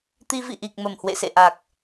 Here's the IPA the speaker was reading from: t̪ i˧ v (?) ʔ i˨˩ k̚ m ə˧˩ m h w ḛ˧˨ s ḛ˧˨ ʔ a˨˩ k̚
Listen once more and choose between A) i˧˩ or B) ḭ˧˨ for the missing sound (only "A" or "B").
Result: B